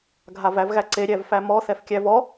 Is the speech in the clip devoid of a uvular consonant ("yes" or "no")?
yes